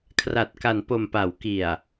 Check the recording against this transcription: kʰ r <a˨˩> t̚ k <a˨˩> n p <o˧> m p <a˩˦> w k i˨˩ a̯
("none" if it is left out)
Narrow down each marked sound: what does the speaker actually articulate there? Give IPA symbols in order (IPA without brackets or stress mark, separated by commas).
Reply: a˨˩, a˨˩, o˨˩, a˩˦